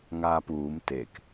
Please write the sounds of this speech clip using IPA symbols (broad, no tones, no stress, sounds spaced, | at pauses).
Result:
ŋ aː p uː m t e k